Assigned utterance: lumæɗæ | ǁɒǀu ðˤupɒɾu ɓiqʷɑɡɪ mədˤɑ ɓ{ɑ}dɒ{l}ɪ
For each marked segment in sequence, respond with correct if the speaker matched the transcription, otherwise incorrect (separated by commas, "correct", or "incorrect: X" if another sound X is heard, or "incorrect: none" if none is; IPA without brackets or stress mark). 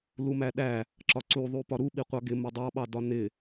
correct, incorrect: n